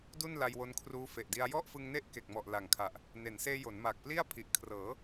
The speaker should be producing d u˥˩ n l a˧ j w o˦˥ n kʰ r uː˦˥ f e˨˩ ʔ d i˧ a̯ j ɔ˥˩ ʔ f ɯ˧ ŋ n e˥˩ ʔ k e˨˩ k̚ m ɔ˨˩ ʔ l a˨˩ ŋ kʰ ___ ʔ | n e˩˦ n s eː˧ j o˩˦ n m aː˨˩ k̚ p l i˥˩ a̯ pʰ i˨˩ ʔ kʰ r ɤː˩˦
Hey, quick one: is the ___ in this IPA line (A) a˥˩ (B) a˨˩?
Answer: B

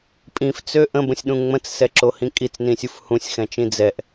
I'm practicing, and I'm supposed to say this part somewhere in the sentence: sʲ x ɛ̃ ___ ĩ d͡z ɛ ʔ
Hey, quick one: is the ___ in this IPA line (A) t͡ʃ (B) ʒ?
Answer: A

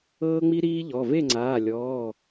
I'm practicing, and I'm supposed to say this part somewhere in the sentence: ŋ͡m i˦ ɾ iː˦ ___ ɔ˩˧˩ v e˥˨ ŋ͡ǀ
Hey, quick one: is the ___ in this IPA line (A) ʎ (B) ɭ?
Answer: A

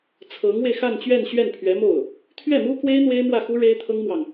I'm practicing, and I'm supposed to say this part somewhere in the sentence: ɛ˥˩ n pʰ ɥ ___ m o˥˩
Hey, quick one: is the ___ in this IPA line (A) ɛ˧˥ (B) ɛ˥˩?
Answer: A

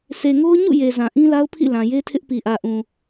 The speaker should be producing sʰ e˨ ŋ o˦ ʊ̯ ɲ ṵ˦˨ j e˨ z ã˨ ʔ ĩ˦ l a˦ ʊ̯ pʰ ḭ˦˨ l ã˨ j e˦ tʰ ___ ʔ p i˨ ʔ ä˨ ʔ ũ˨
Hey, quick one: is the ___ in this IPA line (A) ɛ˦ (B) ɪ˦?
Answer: B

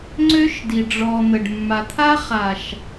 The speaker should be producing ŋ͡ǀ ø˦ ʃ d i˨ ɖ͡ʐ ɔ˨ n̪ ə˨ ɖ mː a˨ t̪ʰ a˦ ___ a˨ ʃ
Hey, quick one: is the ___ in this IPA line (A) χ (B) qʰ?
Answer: A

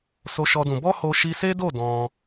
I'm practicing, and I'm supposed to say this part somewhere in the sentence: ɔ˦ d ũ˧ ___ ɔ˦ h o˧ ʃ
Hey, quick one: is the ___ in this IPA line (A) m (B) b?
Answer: B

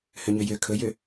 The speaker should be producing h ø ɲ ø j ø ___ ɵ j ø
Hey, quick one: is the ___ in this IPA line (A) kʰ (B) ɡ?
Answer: A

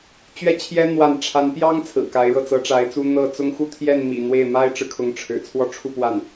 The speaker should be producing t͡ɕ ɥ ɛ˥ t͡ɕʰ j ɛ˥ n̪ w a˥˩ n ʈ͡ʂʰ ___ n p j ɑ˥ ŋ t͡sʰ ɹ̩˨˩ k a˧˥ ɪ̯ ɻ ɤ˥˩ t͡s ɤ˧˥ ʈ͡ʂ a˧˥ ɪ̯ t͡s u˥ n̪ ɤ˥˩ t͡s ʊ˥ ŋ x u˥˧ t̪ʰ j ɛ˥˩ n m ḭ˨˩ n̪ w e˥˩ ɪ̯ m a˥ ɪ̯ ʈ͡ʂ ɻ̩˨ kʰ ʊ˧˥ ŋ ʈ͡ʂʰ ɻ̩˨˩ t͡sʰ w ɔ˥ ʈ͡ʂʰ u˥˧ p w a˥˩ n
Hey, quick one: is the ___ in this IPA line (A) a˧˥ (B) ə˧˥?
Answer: A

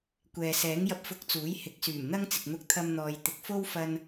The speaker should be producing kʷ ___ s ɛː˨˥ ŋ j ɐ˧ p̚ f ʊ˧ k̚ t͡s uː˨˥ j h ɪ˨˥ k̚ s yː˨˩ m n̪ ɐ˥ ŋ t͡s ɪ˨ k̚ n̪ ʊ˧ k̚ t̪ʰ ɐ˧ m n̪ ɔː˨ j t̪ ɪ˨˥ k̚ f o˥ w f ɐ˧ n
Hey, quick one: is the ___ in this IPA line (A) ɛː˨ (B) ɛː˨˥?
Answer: A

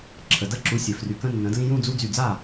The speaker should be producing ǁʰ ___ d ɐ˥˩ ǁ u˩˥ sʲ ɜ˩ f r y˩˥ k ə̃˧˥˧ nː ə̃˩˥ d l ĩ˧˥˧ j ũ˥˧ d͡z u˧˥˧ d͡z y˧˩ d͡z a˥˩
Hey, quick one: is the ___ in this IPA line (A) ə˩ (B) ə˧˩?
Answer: A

